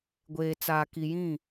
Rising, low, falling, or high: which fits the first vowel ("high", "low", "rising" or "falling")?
low